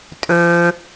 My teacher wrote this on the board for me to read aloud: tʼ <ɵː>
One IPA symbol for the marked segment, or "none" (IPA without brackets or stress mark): ɵː